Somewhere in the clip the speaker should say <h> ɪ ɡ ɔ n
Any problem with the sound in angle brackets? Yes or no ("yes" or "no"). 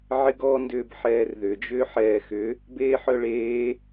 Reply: yes